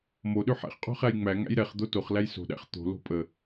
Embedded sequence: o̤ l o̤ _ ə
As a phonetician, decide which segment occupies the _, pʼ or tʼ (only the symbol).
pʼ